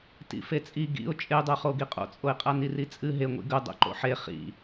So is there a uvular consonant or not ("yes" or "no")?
yes